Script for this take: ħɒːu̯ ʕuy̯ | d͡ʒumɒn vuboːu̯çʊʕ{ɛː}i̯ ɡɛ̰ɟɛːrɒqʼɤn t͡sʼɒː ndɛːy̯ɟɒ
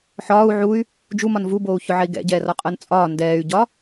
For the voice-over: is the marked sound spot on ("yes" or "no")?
no